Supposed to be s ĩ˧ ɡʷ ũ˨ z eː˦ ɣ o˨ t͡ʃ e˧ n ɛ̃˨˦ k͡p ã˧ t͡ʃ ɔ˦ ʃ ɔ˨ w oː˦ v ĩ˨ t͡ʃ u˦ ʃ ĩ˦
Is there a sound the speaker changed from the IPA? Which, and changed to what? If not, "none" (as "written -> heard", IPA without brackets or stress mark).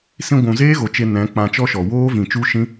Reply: none